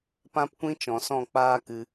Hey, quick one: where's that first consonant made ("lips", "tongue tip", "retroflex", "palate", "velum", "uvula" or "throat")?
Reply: lips